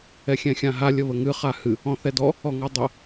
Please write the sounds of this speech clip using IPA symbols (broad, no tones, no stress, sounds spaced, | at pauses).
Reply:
ɛ xʲ ɛ̃ xʲ ã ɦ a lʲ ə β ə ŋ ɨ χ a h ɨ | ɔ̃ θ ɛ d ɔ | ɔ ŋ ɔ dˤ ə